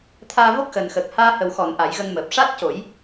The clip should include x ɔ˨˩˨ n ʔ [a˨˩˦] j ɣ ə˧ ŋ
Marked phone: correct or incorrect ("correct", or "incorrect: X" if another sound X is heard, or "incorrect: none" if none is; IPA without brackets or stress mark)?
correct